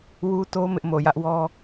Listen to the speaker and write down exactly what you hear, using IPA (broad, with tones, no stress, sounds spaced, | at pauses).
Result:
w u˦ t o˦ m ɪ˦ ʔ m o˨ j ä˦ ʔ w ɔ˦